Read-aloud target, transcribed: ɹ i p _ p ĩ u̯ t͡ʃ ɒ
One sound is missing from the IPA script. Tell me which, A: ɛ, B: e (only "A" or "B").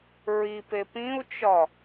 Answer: B